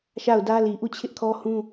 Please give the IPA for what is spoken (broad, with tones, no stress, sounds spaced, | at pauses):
ʃ a˦˨ ʊ̯ d ä˦ l i˨ ʔ u˦˨ t͡ɕʰ ɪ˦ ʔ kʰ ɔ˦ h ũ˦